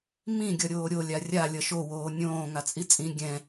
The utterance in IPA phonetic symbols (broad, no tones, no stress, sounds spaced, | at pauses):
m ĩ ɡʲ ʌ ɾʲ oː ɾʲ o lʲ a rʲ a lʲ ʌ ʃ o w oː nʲ õː ŋ a t͡sʼ i t͡sʼ ĩ ɡʲ ɛ̃